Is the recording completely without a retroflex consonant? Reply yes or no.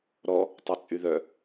yes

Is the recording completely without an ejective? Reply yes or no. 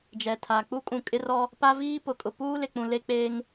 no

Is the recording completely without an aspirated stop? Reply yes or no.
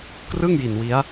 yes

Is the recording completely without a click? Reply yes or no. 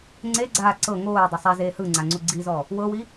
no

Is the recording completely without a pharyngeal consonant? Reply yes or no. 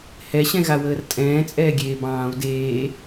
yes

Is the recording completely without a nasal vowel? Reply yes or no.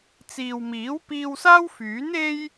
yes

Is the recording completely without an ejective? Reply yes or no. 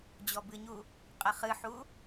no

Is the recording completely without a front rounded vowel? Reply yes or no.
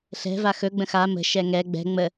yes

